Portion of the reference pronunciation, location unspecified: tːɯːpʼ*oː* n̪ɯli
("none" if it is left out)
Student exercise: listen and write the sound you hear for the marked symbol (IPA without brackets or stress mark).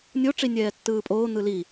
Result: oː